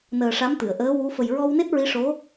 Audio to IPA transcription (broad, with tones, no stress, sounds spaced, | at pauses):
n əː˨˩ ʂ a˧˥ m t̪ ɨ˨˩˨ ə̯ ʔ əː˧˥ w u˧˥ f ə˨˩ j ɹ ɔ˧ w n e˦˥ t̚ ɹ i˧˥ ʂ o˧˥